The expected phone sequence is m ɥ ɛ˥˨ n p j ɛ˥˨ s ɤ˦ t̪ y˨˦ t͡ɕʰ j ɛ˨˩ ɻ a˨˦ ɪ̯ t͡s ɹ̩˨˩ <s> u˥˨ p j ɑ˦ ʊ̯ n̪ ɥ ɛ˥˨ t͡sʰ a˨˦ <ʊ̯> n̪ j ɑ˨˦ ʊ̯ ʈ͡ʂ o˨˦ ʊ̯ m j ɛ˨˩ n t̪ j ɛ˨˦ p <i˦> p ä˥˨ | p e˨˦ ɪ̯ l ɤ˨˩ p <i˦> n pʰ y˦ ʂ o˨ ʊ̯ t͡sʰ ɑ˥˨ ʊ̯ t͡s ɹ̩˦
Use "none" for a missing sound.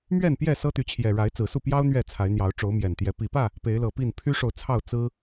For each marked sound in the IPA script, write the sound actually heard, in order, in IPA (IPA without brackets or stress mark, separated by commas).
s, ɪ̯, i˨˩, i˥˨